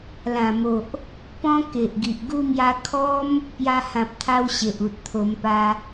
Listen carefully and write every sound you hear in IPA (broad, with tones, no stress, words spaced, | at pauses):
lã˨˩mo˨ʔ | pɔ̃˧ ke˨ʔɡi˨ʔɡu˦mja˦ kʰɔ˦m | pja˧hã˨p̚t̪ʰa˧w ɕe˨ʔu˨t̚t̪ʰo˧mpa˦